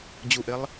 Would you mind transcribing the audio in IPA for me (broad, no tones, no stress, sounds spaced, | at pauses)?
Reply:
d͡ʑ u ʔ ɪ lˠ